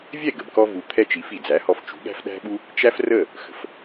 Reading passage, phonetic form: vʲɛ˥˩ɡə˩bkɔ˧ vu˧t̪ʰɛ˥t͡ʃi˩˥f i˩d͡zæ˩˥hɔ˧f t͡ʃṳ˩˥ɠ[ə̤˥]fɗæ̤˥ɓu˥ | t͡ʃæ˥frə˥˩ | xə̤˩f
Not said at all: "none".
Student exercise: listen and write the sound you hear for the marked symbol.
æ̤˥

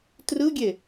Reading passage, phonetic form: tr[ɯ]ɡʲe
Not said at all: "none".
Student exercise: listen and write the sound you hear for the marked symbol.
ɯ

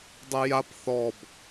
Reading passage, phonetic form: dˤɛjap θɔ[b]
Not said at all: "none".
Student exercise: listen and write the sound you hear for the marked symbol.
b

